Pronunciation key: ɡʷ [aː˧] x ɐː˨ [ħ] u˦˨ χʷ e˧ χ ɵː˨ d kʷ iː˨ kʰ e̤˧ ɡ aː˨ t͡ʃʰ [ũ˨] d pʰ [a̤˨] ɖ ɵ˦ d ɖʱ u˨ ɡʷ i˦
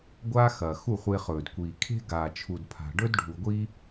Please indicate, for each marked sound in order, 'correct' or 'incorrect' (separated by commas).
incorrect, incorrect, incorrect, correct